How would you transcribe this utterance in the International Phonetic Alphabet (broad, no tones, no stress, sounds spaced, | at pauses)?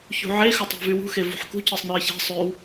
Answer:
ç ṳ ʕ e x ɵ tˤ æ̤ v y w ṳ x e v ṳ ħ k ṳ c e sˤ n œ ɐ̯ ç æ̤ sˤ ø w